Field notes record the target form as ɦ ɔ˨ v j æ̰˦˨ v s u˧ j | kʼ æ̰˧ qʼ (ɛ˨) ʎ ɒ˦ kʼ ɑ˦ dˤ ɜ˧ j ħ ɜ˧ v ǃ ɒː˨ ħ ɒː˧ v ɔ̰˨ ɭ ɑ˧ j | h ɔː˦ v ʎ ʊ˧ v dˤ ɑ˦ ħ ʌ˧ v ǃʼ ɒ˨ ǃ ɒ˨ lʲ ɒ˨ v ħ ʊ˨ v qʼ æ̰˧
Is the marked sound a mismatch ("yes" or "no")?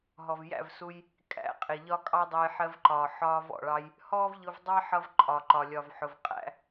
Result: yes